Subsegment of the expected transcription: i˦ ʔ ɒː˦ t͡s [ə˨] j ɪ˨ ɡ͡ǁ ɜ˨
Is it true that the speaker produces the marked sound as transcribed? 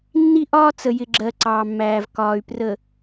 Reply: yes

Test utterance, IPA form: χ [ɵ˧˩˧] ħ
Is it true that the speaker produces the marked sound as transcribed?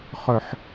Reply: yes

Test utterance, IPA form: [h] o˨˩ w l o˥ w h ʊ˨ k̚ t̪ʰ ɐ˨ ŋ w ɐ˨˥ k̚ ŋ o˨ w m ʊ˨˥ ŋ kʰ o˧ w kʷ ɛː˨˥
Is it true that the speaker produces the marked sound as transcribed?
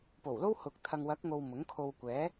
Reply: no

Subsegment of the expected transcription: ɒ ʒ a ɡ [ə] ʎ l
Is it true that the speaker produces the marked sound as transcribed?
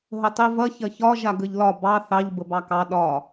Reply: yes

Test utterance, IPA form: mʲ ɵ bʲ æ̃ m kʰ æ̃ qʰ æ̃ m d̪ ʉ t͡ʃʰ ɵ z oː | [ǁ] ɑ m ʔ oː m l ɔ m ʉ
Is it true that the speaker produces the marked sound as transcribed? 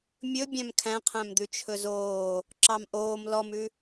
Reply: yes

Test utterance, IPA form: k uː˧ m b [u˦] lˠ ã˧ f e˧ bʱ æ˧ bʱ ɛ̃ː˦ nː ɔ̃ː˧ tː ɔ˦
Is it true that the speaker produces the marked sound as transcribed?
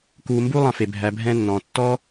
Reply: yes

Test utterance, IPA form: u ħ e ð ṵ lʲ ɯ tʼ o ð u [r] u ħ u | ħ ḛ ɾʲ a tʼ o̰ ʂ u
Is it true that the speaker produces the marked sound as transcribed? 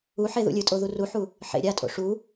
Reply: yes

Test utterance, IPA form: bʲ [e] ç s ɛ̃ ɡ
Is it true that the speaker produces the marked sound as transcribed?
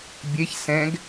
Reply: yes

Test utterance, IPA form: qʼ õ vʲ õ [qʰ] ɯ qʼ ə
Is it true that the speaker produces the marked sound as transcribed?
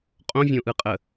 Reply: no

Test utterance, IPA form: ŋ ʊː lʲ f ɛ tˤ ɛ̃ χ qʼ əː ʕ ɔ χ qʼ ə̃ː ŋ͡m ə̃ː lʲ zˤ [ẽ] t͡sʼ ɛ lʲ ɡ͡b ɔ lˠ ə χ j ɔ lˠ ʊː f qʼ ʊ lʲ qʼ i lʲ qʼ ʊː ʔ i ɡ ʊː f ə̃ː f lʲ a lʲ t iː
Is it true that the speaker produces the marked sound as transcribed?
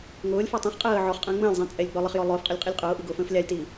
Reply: no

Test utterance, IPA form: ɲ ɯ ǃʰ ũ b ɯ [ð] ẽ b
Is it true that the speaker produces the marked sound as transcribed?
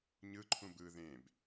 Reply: yes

